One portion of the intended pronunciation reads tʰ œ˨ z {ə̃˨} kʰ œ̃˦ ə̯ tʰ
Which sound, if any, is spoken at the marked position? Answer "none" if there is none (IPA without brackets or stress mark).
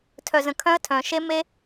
ə̃˨